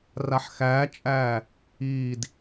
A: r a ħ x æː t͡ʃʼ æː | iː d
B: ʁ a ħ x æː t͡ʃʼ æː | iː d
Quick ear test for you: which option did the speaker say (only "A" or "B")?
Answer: A